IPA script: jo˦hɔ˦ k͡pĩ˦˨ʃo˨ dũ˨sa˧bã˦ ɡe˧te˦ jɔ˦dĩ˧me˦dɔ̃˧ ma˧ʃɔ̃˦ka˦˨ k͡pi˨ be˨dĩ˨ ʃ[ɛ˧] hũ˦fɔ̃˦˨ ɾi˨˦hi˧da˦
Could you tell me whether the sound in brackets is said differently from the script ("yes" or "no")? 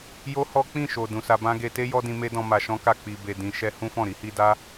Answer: no